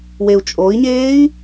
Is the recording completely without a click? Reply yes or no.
yes